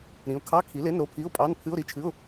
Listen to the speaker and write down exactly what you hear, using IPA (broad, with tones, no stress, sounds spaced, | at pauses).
ɾ ĩ˩˥ ʊ̯ kʰ ɑ˧˥˧ kʰ i˩˥ l e˧˥˧ n ɾ o˧˥˧ pʰ i˧˥˧ ʊ̯ pʼ ɑ˧˥˧ n pʰ ɨ˧˥˧ ʊ̯ ɾ i˧˥˧ t͡ʃʰ ɨ˧˥˧ ʊ̯